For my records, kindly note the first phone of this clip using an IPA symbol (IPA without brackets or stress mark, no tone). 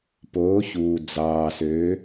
p